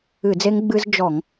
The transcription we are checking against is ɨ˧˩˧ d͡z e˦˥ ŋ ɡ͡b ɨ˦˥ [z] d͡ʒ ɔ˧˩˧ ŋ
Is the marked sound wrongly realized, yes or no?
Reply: no